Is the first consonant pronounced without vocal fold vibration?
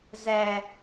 no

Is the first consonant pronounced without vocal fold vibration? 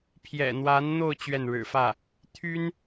yes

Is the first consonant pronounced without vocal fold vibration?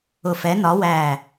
yes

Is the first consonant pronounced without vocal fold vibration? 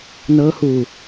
no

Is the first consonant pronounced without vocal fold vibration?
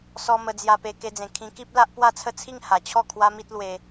yes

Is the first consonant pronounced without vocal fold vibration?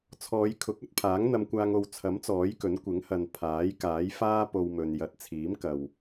yes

